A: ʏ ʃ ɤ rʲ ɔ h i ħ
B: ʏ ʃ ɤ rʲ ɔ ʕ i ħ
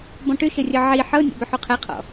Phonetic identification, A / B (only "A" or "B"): B